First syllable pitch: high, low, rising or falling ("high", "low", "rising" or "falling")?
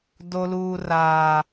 low